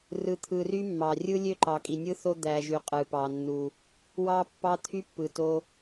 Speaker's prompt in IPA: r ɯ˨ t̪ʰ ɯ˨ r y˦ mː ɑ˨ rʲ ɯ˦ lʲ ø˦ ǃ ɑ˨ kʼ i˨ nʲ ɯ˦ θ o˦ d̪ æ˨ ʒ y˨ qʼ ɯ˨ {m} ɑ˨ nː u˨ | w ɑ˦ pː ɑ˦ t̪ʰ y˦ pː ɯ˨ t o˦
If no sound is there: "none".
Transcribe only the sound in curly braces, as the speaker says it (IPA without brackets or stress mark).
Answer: p